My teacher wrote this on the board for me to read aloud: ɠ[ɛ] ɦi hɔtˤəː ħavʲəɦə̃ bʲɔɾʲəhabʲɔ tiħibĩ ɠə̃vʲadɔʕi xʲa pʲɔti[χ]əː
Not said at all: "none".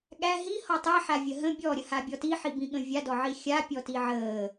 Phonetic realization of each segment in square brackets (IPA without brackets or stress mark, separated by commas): æ, ʕ